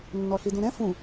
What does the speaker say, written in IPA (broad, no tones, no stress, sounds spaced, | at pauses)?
nː ɔ ɬ i d ũ ɾ ɛ̃ f ũ